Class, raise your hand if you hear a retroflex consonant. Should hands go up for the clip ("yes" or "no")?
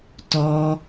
no